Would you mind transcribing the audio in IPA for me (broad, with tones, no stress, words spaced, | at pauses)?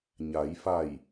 ɲa˩˧jfa˧˩j